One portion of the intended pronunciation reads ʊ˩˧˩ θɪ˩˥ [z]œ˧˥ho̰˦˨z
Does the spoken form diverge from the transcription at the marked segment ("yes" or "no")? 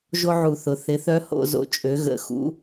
yes